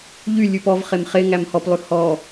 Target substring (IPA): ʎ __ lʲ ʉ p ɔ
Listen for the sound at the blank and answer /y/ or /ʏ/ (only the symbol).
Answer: y